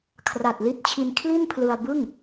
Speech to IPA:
kʰ r a˨˩ t̚ l i˦˥ t̚ t͡ɕʰ i˧ n kʰ l i˥˩ n pʰ l ɯ˧ a̯ b ɯ˥˩ ŋ

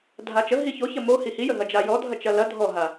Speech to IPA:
dʱ a t͡ʃ ə ɦ i ç o ç ɐ m o h i h i j ə ɦ ɐ d͡ʒ a j ɔ dʱ ɐ t͡ʃ ɐ l ɐ dʱ ɔ ɦ a

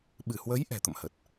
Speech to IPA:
ɓ ɨ˧˩ h w ə˨˦ j ʔ ɛ̤˨˩ t̪ ə̰˧˨ m h ə˨˩ t̚

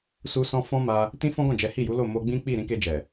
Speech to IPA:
s u˧ s ɔ̃˧ f ɔ̃˦ m a˧ | t ĩ˦ f ɔ̃˦ ɡ ɔ̃˦˨ d͡ʒ ɛ˨˦ h i˦˨ j u˨˦ l o˦˨ m o˧ ɡ͡b ĩ˦ k͡p i˦˨ ɾ ĩ˨˦ k e˧ d͡ʒ ɛ˨

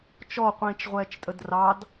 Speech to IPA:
t͡ʃ ɔ qʷ ĩː t͡ʃ ʁʷ ɛː t͡ʃ tʼ ə d r ɑ d

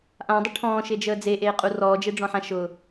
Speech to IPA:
ʔ ã dˤ ə ʈʰ ɔ̃ː ʃ e d͡ʒ əː d͡z e ʔ eː qʼ u r ɔː d͡ʒ e ɖ͡ʐ ɔ̃ ħ ã ʃ ʊ

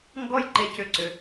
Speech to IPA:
ŋ ɡ ɔ˦ j ǃ e˧ c ʏ˧ ǀ ʏ˧

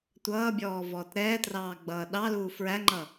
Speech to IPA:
tʷ ʌː bʲ ɔː v ɔː t ɾ ɛː t r ɑː ɡ͡b ʌː ɗ ɑ l uː f ɹ æ ŋ͡ǃ ʌ

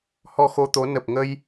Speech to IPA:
h ɔ˧ x o˧ t̪ o˨˦ n ə˨˩ p̚ ŋ ə˧ j

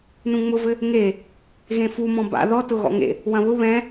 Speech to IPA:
n ũ ŋ͡m ʊ v ɘ | ŋ e | ɣ ẽ f u m ɔ̃ b a̰ ð ɔ t ʊ ɣ ɔ̰ ŋ ḛ | w ɐ̃ β ʊ β ɛ̃

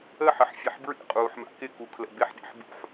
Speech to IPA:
ə ħ ə ħ fʲ e ħ b ɹ ḭ qʼ uː ħ m a̰ k ɪ k u kʰ l ə̰ b ɪ ħ ɗ ḛ ħ b ṵ ħ

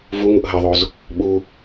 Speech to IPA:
v u ŋ u ʔ ɦ ɐ ðˤ o z | ɓ u

